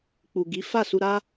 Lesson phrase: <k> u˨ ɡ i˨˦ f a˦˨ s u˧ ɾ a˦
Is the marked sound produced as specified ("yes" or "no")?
no